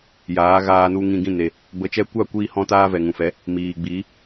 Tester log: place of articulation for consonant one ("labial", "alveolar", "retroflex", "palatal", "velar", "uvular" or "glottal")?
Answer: palatal